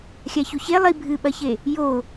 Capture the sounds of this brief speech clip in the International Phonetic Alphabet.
xʲ a ç u ç e lˠ i bʱ ɨ ɓ ɐ ç e | j o

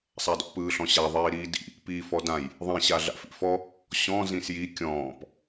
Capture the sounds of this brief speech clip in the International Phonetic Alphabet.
sˤ a d ɔ̰ p ɯː ɬ ɔ̃ ɕ a ðˤ iː ɾ iː d ḭ | p iː f ɔ d ã j | ðˤ ĩ ɕ a ɮ a̰ f ḭ f ɔ | ɕ ɔ̃ z ĩ s j i kʲ ɔ̃ː p

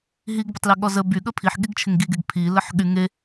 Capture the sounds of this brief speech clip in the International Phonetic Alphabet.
ɦ i ɡ b ə tˤ l ɪ ɠ ɔ z ə b y ɠ ə pʰ i ħ ɠ i ɡ t͡ʃʰ ɪ ŋ ɡ i ɡ e ɡ pʰ i l ə ħ ɠ y ŋ e

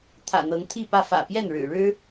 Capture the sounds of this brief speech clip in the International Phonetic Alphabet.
t̪ʰ ä̰˨˩ n̪ ɤ˨˦ ŋ t̪ʰ i˥˨ p ä˥˨ f ä̰˨˩ p j ɛ˥˨ n ɻ ɻ̩˨˩ ɻ ɻ̩˦

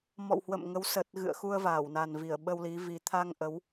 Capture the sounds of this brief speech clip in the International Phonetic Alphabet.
m ɔ̰˧˨ w h w ə̰˧˨ m ŋ ə˨˦ w s ə˨˩ t̚ ɣ ɨ̰˧˨ ə̯ x u˧ ə̯ v aː˧˩ w n a˨˩ n v i˧˩ ə̯ ɓ ə˧ w l i˨˦ v i˨˩ t̪ʰ a˧ ŋ ʔ ə˨˦ w

